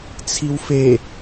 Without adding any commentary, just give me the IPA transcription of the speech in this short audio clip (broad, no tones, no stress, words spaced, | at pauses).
t͡sʰiwfe